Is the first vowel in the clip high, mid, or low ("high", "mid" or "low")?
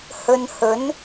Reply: mid